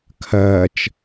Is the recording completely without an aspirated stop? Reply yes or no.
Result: no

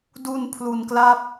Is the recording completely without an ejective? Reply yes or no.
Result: yes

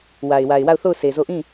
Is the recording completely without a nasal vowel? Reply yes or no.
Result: no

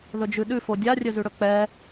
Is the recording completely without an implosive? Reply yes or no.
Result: no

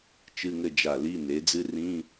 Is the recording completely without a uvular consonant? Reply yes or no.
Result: yes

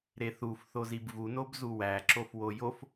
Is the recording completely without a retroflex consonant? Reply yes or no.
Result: yes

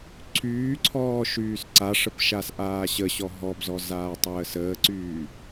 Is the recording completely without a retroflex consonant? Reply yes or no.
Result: no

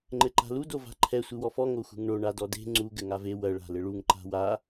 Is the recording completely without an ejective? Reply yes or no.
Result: yes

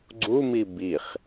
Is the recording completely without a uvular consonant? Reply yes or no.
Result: no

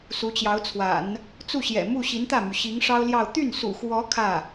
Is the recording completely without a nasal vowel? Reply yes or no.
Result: yes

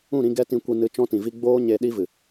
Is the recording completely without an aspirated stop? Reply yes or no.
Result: yes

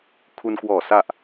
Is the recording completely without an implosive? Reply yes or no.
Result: yes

